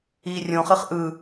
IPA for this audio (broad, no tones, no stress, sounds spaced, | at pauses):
iː rʲ õ χ ɨ χ ʔ ɯ